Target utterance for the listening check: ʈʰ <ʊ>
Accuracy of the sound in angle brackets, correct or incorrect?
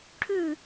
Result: incorrect